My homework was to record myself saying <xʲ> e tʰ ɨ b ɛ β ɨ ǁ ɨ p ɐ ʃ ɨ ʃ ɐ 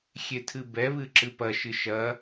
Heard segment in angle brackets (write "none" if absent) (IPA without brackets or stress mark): xʲ